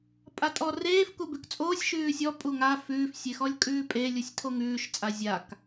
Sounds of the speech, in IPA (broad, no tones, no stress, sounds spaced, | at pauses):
pʼ a tʼ ɔ r eː f k u b ʉ k t͡sʼ oː sʲ ʃ ʉː sʲ ɔ pʼ u ŋ a f ʉː f sʲ e x ɔ lʲ kʼ ʉː pʼ e lʲ u sʲ tʰ o ŋ ʉː ʃ t͡sʼ a zʲ a k